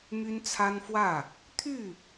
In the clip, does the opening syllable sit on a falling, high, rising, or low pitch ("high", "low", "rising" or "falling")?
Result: high